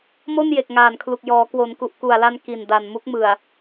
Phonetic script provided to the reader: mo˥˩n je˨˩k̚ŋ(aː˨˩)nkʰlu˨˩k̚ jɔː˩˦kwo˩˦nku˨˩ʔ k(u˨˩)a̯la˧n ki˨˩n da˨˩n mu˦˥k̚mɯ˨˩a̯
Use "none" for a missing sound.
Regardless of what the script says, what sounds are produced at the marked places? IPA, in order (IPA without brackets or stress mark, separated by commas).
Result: aː˨˩, u˨˩